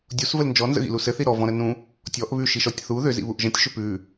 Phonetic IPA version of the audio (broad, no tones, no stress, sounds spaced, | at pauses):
dʲ u s v ə l n d͡ʒ ɔ n z ə̰ ɣ ḭ l u s ɘ θ i ɾ ɔ v ɔ̃ ɾ ə n ũ | tʲ ɔ ʔ β ʉ ʃ i ʃ ɔ tʲ θ u ð ʏ z ḭ β u ʔ ʒ ə̃ tʲ ʃ ʏ p ʉ